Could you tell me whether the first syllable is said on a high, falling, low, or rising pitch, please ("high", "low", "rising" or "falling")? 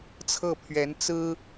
falling